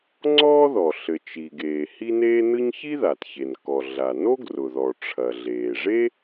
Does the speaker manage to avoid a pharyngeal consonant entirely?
yes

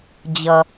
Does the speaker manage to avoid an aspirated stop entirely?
yes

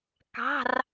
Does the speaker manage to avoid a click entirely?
yes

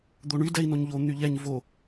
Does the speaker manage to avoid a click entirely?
yes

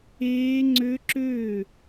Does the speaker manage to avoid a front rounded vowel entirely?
no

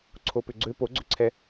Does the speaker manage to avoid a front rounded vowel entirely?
no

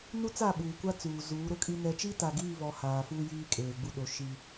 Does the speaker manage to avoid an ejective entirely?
no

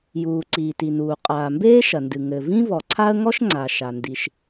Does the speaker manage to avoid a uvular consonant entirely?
no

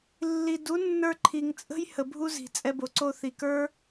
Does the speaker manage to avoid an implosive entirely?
yes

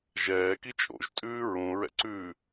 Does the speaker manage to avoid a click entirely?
no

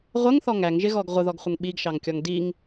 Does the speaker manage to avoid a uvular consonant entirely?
no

